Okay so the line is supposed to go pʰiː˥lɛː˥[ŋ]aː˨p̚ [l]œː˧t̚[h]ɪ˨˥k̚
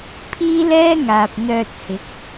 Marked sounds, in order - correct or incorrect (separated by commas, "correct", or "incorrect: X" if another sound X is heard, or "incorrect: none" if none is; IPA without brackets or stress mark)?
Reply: correct, incorrect: n̪, correct